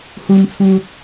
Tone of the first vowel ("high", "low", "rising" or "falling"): low